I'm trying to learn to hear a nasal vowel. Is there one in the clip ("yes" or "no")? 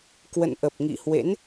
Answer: no